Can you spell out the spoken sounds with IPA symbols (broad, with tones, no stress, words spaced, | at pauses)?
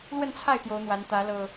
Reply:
lwə˥˨nt͡sʰa˥˨ɪ̯ t̪jo˨˦ʊ̯n̪wa˨˦nt̪ä˨˦ lɤ˨˩